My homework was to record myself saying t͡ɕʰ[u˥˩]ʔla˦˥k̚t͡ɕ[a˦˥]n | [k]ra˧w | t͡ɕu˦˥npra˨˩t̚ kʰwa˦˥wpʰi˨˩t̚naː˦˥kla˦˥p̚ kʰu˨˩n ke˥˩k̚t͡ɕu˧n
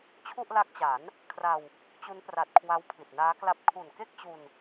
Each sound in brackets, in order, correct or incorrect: correct, incorrect, incorrect

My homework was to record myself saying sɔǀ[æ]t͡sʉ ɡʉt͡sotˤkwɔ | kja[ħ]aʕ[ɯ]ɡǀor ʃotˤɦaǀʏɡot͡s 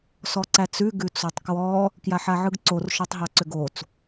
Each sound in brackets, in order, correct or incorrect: correct, correct, correct

